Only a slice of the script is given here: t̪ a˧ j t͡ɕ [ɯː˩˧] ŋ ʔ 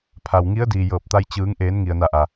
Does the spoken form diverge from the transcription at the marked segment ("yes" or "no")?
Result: no